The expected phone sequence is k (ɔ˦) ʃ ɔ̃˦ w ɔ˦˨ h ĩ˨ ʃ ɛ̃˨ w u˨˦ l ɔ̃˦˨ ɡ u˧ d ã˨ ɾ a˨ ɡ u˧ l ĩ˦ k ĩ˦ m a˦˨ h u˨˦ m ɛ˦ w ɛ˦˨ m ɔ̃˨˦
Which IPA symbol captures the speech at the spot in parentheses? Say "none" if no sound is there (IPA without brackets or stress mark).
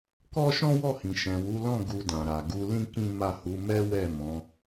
ɔ˦